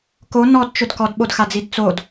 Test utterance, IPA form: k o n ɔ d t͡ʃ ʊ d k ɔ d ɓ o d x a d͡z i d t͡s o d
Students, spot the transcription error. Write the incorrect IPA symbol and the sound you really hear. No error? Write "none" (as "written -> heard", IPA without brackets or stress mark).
none